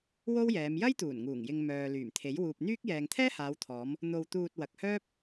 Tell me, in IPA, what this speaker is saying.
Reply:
w o˥ w j ɛː˨˧ m j ɐ˥ j t̪ uː˨˩ n ŋ uː˨˩ ŋ j ɪ˨ ŋ m œː˨ l yː˨˩ m t̪ʰ e˨˥ j w uː˨ p̚ n̪ yː˥ k̚ j ɛː˨ ŋ t̪ʰ ɛː˥ h aː˨˧ w t̪ʰ ɔː˨˧ m | n̪ o˧ w t̪ uː˧ t̚ w ɐ˨ k̚ h œː˥ p̚

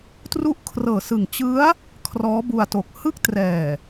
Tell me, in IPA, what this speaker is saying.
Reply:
t r u˥˩ ʔ kʰ r ɤː˨˩ s ɯ˨˩ ŋ t͡ɕ ɯ˦˥ a̯ | kʰ r ɔː˦˥ b u˧ a̯ t o˨˩ k̚ h ɯ˥˩ k̚ t r ɛː˨˩

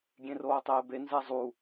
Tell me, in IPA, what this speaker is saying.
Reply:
ɡʲ ẽ r oː tˤ eː b e n z ɛ zˤ u

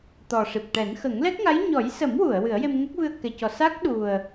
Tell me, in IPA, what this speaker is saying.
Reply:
t̪ ɔ˨˩ ʂ i˨˩ p̚ ʈ ɛ˨˩˦ n x ə˨˩˦ ŋ l ɛ˦˥ k̚ ŋ a˧˥ j ɲ ɔ˨˩˦ j s ə˨˩˦ m w u˨˩˨ ə̯ w ɨ˨˩˦ ə̯ j e˧ m ŋ ə˦˥ k̚ v ɨ˧ ə̯ k ɛ˨˩˨ c ɔ˨˩ s a˦˥ k̚ ɗ u˨˩ ə̯

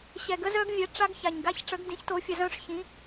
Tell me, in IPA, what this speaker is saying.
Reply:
ɕ ɛ˨˩ ɡ ə˦˥ z œ˦˥ ɡ vʲ ɛ˨˥ ʈ͡ʂ a˦˥ ɡ ç a˨˩ ɲ ɡ a˦˥ ç ʈ͡ʂ ə˨˥ ɡ d ĩ˨˥ ç t o˨˥ fʲ ə˨˩ z œ̃˦˥ ʂ ç ĩ˨˥

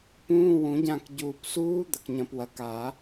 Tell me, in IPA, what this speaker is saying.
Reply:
p ũː˧˥˧ w ũ˨˩˦ ɟ ã˦˨ k ɟ uː˨ p s uː˦˥ d̪ ɐ˨ k ɲ ɐ̃˨ p w ɐ˨ k a˨˩˦

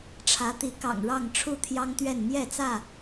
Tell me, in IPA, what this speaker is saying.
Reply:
ʈ͡ʂʰ ä˨˦ t̪ i˨˦ k ɑ̰˨˩ ŋ ɻ ɑ˥˨ ŋ ʈ͡ʂʰ u˥˨ t̪ʰ j ɑ˦ ŋ t̪ ɥ ɛ˥˨ n m j ɛ˥˨ t͡s ä˥˨

